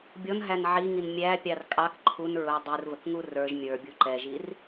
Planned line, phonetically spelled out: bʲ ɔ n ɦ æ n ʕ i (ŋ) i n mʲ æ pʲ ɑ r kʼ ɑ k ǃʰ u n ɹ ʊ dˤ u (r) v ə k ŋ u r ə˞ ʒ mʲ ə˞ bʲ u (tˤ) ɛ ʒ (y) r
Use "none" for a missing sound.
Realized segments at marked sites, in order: ŋ, r, ǃ, i

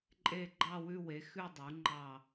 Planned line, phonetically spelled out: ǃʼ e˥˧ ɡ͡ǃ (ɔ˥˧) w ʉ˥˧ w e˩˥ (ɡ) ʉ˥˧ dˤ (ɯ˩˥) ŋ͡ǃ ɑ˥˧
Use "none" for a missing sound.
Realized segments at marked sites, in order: ɑ˥˧, x, u˩˥

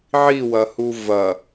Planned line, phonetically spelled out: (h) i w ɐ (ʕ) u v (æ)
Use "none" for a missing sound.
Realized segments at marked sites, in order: ʕ, h, ɐ

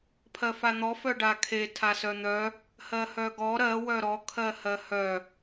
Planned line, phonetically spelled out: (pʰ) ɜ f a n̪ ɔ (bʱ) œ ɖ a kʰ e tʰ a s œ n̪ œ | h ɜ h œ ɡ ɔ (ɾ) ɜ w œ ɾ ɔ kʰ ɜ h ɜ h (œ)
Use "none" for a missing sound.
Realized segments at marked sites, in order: pʰ, f, ɾ, œ

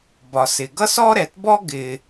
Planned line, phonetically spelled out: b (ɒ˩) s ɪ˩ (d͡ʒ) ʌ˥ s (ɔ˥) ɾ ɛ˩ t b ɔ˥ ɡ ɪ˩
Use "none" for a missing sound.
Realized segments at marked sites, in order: ɒ˩, ɡ, ɔ˥

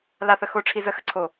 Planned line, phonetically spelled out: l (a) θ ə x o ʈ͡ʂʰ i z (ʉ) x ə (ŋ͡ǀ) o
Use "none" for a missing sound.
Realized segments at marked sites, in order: a, ə, ǀʰ

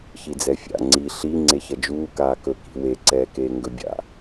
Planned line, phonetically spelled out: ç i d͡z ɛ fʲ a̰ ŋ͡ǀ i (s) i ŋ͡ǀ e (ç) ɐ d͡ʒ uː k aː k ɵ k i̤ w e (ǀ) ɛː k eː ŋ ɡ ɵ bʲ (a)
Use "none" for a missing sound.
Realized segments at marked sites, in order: ɬ, ç, ǀ, a̰

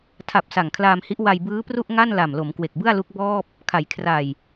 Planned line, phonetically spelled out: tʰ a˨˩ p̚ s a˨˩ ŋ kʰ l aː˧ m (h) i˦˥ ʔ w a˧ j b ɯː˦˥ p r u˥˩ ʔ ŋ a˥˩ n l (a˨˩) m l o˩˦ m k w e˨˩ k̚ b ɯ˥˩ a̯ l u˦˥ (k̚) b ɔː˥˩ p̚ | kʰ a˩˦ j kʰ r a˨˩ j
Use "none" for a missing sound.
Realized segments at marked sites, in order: h, a˨˩, k̚

